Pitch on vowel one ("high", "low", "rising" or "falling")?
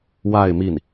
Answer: falling